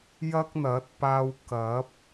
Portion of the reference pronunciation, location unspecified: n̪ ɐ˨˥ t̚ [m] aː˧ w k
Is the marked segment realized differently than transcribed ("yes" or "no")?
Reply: yes